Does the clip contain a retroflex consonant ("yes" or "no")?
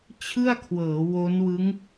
no